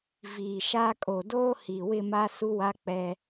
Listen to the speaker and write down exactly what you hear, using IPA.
v iː˨ ʃ a˦ kʼ o˨ d oː˦ h i˨ w ɪ˦˨ m a˦ s u˦ w a˦ k͡p ɛ˦

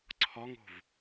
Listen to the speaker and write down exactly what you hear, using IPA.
ǀʰ ɒ ŋ o̤ v

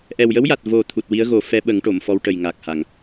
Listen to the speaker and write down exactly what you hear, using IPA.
ʔ ɛ˨˩ w j ə˧˥ w j a˨˩ t̚ v o˨˩ t̪ʰ u˨˩ t̚ w i˧˥ ə̯ ɣ o˨˩˦ f ɛ˧˥ ɓ ə˨˩˦ ŋ ʈ o˨˩˨ m f ɔ˧˥ w ʈ ə˨˩ j ŋ a˨˩ k̚ h a˨˩˨ ŋ

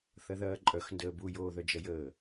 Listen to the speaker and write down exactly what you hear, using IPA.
θ ɐ ð ɐː ǃʼ œ x n d əː b u j oː ð œ d͡ʒ ɐ j əː

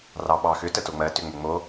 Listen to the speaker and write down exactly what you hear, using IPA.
r ɑ ɓ ɑ x ʏ t ə t o ŋ͡m ɜ t ʏ ŋ͡m ʏ ŋ͡m o

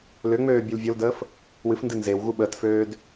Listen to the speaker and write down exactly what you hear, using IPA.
l ʏ ŋ͡m øː bʲ u l vʲ o l d əː f | w ɨ f n d ɨ n z e w ɣ u ɓ əː t f øː d

